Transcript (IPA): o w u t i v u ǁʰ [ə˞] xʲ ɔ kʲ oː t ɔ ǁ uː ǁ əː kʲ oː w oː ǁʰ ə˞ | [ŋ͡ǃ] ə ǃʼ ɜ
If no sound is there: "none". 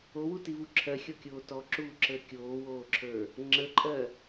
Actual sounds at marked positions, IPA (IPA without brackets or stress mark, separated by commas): ɜ, ŋ͡ǁ